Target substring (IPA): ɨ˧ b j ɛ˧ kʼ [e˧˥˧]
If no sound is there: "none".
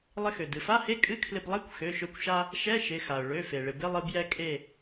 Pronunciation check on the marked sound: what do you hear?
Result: e˧˩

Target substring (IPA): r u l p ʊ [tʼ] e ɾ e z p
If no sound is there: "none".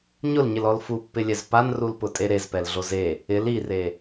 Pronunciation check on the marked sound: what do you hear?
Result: tʼ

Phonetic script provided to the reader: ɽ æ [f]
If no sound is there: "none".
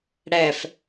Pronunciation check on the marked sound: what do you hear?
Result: f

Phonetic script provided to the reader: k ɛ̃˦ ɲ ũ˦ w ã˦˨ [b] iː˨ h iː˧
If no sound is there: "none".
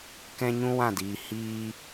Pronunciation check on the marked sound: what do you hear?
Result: d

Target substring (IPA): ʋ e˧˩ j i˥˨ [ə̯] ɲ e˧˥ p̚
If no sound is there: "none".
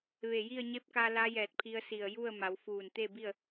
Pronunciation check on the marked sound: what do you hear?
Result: ə̯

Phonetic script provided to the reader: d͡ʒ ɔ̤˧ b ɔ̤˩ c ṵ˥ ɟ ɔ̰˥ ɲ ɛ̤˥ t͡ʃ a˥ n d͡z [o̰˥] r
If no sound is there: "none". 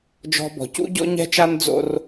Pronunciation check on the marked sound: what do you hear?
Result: o̰˥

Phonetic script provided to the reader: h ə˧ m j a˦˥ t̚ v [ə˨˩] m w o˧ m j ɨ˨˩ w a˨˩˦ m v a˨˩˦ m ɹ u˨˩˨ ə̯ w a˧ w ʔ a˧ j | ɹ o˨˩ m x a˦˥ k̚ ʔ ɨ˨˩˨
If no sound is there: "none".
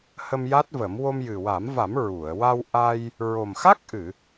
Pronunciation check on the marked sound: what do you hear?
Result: ə˨˩˦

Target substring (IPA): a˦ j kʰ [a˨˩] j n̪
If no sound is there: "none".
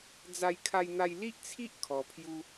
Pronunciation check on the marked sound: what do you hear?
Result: a˦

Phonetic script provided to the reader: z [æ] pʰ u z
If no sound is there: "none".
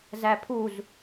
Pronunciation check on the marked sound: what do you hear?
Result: æ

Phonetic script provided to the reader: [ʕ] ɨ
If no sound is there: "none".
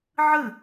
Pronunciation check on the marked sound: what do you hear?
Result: ʕ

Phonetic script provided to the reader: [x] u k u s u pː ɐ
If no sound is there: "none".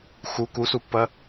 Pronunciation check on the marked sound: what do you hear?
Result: x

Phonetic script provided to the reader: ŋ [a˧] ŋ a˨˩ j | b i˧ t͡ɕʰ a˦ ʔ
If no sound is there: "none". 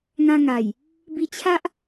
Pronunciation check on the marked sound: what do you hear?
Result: ã˧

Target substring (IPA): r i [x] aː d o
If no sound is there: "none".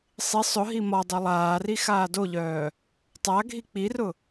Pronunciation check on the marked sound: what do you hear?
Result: x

